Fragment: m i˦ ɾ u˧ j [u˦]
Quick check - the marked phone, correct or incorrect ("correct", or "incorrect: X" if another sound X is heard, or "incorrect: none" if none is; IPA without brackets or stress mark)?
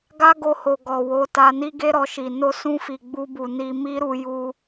incorrect: u˧